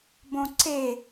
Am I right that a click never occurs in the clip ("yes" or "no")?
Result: no